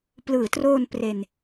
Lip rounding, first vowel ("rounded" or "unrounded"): unrounded